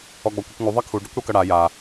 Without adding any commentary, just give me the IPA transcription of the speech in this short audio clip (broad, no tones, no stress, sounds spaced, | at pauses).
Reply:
ɔ ɡ͡b ɔ kʷ ʌ kʷ ŋ u ðˤ ʌ kʰ u ɖ ʌ kʷ ɽ o k ʌ ɽ a j a